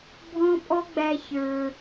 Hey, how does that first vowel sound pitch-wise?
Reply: high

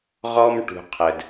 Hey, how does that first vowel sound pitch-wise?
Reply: high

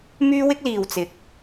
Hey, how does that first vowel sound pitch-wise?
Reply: high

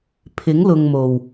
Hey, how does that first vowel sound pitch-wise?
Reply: rising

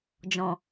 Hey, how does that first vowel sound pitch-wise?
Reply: low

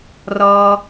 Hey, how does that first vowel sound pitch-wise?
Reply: low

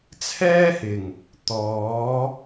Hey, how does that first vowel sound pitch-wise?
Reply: high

